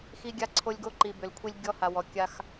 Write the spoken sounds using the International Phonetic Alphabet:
xi˦ɡʲa˦ǀʰo˦lʲ ɡo˦ǃi˨bʏ˨lkʷʰi˦lʲ ɡʲɔ˦ha˨wɔ˨ kʲa˦x

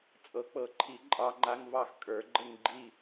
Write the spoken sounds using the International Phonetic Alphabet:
t͡sʼɤ˨˥k͡pɤ˨˥ǃʰi˨˥ ǃʼɑ˧˥˧ŋ͡ǃa˧˥˧ŋvɑ˥˨x kʼə˞˨˥ɡ͡ǃə˥˨ŋɡ͡ǃi˥˨

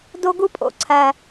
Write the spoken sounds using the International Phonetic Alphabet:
do˦ɡu˦pʼo̰˨ ǀʰæ˦

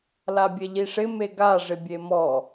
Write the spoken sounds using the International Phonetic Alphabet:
labʲɛʎiʂɪ meɡa ʐɪbʲemɔ

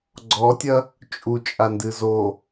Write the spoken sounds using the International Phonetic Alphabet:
ɡ͡ǀɔtʲɐ | t͡ʃʼut͡ʃʼandɨ zo

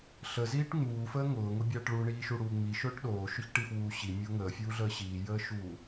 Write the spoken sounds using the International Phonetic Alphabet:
ɬəziːʈ ŋ͡muːfəː ŋʊːŋʊbʲaːʈ ɭuɳiːʃuɽuː ŋ͡miʃʊːʈ ɗoːʃʊçʈifwuː ɕimʲʊː ŋəːfʲuːɮəː ɕiːjəːʃuː

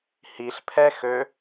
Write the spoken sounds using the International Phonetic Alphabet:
hiɬpʰɛxø

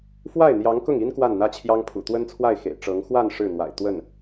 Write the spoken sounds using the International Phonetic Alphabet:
fwa˥˩ɪ̯n̪jɑ˧˥ŋkʊ˥˩ŋi˥n kwa˥˩nn̪ä˥t͡ɕʰjɑ˥ŋpʰṵ˨˩ t̪wə˥nt͡sʰwa˥˩ɪ̯xḛ˨˩ɪ̯ ʈ͡ʂɤ˧˥ŋ xwa˥˧n ʂɻ̩˥˩n̪wa̰˨˩ɪ̯ t̪wə˥˩n

